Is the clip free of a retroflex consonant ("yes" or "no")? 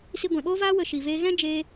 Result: yes